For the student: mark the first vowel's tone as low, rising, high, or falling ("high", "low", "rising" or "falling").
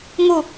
falling